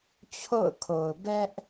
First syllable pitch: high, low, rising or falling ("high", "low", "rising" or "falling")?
falling